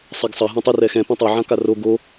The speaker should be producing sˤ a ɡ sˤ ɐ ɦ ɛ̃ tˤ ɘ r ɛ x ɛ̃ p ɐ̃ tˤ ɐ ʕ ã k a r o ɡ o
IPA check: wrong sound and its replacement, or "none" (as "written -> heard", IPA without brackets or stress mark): none